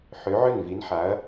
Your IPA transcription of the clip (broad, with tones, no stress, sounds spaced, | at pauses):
ħ ø˨˥ ʕ ø˥˩ n v i˨˥ n ħ a˨˥ ɐ̯